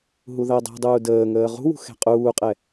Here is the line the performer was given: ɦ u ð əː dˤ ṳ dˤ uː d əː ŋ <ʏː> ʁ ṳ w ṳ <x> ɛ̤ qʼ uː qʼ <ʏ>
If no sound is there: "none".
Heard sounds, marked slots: əː, x, ɛ

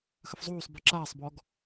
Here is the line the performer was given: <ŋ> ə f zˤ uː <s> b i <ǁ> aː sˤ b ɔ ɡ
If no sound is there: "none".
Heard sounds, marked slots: x, sˤ, ǁ

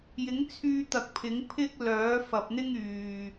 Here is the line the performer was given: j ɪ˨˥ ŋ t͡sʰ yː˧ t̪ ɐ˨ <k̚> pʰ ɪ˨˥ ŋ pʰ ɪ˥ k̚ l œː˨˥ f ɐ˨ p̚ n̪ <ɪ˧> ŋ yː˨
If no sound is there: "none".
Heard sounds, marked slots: k̚, ɪ˥

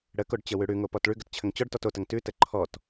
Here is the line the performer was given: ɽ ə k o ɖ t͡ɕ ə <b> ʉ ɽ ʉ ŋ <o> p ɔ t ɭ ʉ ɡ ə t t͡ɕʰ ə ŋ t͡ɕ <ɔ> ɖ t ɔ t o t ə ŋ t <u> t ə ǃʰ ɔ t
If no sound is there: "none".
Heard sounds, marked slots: w, o, ɔ, ʉ

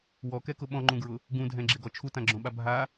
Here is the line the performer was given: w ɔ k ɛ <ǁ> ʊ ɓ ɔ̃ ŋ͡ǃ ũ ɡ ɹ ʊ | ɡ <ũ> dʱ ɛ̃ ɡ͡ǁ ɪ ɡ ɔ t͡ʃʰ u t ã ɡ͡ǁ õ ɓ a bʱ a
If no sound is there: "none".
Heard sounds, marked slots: k, ũ

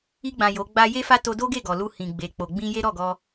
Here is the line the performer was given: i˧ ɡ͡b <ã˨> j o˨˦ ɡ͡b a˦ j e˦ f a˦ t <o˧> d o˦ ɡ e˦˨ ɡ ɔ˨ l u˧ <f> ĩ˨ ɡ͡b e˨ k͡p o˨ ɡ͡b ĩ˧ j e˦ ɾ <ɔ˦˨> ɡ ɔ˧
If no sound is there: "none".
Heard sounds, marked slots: ã˨, o˧, h, ɔ˦˨

